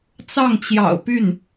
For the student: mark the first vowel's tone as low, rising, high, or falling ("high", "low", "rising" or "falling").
falling